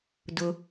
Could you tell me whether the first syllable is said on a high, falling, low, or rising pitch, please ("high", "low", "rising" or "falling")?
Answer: low